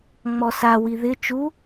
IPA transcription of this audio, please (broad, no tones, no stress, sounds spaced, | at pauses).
ŋ͡m ɔ s a w i ð ɪ t͡ʃ u